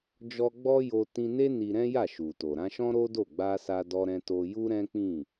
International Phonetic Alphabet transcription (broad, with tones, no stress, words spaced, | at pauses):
d͡ʒɔ˧ ɡ͡bɔ˦jo˧ tĩ˧ne˦ ni˧ɾɛ̃˦ja˦˨ ʃu˨to˨ ɾã˧ʃɔ̃˦ɾo˦do˦˨ ɡ͡ba˧sa˧dɔ˧ ɾɛ̃˧to˧ ju˦ ɾɛ̃˦k͡pĩ˦˨